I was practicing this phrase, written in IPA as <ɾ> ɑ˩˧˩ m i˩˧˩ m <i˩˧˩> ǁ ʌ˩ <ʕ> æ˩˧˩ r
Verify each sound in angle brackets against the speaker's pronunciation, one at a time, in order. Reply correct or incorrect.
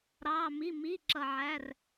correct, correct, correct

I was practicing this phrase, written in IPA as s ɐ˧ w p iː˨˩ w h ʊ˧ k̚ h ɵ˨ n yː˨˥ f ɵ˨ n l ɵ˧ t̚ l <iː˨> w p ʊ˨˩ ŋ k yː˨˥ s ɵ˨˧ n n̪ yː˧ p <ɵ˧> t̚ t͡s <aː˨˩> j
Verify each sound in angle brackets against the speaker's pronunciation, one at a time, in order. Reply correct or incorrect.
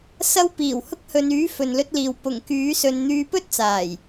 correct, incorrect, correct

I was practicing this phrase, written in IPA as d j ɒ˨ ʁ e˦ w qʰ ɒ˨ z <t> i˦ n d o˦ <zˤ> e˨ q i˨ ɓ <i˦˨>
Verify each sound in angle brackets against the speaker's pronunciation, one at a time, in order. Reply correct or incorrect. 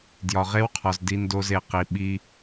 incorrect, incorrect, incorrect

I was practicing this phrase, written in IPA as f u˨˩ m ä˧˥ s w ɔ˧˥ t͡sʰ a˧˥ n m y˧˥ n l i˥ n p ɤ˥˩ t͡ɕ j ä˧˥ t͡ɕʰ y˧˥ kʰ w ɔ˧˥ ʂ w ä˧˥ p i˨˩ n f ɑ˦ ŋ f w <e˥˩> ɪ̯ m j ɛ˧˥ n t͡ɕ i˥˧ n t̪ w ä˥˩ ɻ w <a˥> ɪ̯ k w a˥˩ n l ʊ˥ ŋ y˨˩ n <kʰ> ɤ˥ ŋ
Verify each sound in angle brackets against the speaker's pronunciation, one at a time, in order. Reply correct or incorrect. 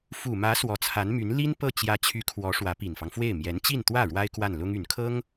correct, correct, correct

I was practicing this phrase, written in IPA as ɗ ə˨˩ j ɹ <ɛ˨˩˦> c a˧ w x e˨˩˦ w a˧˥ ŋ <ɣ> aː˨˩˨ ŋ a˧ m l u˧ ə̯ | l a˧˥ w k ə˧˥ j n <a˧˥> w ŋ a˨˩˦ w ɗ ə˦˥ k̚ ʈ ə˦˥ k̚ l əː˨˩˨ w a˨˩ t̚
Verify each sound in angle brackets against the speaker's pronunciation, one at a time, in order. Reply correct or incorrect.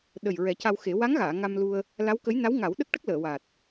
correct, correct, correct

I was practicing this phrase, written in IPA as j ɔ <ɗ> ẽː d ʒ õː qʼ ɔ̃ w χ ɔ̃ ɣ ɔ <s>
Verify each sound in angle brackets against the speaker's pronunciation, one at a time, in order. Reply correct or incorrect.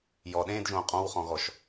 correct, incorrect

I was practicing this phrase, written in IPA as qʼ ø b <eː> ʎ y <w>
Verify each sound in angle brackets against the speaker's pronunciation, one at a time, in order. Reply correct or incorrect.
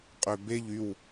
incorrect, correct

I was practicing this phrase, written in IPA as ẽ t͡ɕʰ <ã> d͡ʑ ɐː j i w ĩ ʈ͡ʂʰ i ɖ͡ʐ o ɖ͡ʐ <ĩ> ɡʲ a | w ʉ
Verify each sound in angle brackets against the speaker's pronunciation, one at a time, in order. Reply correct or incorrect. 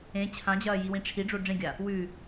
correct, incorrect

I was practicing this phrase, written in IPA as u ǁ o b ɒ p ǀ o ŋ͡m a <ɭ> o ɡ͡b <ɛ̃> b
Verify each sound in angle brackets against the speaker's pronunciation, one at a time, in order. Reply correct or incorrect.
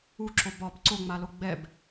incorrect, incorrect

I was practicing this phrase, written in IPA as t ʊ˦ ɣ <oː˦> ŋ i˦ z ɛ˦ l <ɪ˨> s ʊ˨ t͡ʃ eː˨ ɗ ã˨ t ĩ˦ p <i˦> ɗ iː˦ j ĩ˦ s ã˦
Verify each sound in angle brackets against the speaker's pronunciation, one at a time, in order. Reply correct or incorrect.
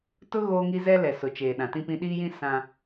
correct, incorrect, incorrect

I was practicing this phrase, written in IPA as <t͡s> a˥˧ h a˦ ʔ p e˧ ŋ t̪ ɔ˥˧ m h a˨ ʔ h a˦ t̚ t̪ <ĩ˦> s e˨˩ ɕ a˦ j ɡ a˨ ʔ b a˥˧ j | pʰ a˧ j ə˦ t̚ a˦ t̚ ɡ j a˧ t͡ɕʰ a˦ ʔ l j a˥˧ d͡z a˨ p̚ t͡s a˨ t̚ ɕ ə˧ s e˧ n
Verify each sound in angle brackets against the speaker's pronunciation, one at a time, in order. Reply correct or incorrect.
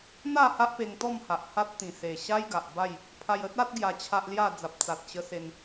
incorrect, incorrect

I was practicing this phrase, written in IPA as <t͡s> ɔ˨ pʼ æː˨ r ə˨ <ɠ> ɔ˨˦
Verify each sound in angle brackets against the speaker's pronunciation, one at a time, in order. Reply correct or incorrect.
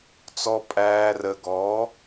correct, incorrect

